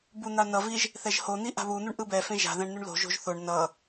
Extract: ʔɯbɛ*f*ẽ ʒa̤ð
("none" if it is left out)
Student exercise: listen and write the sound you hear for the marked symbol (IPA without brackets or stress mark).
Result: f